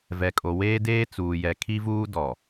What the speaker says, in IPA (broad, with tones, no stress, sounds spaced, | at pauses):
v ɛ˨ kʼ o˨ w eː˦ d eː˦ t͡s uː˨ j ɛ˨ kʰ i˦ v uː˦ d ɔ˨